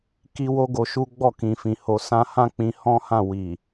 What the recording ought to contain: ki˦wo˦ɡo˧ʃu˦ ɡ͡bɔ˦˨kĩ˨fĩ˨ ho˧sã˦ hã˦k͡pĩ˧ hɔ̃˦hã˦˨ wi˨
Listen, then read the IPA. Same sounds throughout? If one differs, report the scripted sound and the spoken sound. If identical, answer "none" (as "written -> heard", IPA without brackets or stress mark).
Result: none